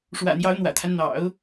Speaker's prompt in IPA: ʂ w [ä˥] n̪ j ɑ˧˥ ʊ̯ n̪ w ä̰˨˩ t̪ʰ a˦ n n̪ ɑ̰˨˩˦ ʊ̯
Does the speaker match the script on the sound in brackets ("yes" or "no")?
no